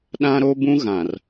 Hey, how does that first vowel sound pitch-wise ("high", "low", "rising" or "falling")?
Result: high